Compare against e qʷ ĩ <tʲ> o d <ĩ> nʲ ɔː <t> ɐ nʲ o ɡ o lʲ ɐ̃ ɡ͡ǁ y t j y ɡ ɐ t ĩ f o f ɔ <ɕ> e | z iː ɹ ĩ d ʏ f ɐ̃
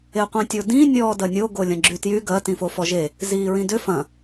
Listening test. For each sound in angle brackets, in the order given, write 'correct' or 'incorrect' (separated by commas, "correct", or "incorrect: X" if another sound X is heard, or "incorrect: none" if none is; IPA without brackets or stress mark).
correct, correct, incorrect: d, incorrect: ʒ